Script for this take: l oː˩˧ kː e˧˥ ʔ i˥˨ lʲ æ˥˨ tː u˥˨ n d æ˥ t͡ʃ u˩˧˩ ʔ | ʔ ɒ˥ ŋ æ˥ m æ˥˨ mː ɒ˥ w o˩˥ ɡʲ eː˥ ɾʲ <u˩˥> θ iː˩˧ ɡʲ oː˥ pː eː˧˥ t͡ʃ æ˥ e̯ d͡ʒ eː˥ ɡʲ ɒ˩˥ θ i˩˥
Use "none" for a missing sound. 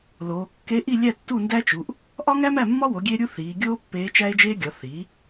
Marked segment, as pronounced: u˥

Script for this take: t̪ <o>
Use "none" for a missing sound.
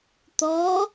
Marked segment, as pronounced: ɔ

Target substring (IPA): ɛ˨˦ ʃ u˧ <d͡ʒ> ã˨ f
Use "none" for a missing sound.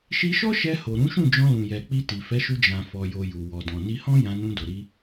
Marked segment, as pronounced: d͡ʒ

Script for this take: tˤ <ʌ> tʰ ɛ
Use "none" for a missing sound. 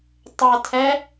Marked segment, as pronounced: ʌ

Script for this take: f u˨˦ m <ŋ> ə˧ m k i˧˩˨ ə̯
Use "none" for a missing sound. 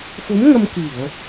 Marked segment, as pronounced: ŋ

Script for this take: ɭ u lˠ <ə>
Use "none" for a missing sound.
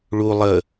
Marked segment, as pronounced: ə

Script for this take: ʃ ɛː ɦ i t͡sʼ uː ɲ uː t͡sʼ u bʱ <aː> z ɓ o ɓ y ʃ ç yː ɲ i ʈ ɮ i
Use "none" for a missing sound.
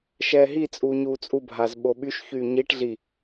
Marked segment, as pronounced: aː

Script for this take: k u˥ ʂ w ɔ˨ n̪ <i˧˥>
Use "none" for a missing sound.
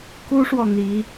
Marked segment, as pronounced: i˧˥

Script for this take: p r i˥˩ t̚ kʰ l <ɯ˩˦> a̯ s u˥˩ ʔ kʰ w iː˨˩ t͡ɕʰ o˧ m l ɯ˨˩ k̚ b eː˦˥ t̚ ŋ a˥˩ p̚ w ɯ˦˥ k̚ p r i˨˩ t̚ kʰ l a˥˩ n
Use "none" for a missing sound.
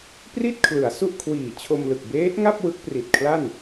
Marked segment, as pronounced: ɯ˩˦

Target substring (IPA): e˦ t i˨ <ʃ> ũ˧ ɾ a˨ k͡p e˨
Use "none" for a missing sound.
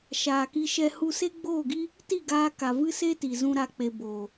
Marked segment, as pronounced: z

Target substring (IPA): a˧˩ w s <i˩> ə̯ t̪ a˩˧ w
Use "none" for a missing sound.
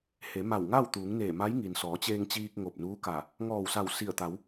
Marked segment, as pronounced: i˧˩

